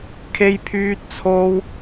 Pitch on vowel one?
high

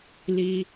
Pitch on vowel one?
low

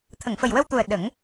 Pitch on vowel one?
low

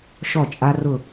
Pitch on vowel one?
falling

